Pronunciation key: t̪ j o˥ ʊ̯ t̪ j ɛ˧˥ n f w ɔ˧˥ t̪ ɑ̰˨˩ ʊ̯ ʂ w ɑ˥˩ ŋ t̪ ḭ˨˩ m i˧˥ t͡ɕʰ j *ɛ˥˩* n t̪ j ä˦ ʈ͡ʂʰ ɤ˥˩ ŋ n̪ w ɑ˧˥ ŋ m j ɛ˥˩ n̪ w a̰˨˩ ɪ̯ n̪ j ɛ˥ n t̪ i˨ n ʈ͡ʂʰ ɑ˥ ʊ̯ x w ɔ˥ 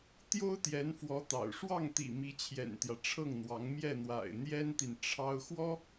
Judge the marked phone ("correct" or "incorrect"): incorrect